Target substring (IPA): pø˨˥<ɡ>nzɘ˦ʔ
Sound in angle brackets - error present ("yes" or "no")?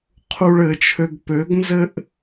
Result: no